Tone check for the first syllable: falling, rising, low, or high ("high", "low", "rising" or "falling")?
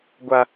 low